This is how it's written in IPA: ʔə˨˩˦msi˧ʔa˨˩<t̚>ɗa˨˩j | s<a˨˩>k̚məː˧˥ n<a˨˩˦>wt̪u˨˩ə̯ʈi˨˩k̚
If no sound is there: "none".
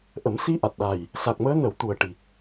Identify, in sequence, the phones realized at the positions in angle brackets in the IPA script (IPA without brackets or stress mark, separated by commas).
t̚, a˨˩, ə˨˩˦